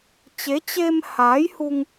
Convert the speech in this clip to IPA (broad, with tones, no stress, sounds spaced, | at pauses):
t͡ɕ e˨˦ t͡ɕ e˧ m h aː˨˦ j h u˧ ŋ